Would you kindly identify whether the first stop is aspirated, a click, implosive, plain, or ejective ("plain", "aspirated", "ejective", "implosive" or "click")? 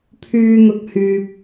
aspirated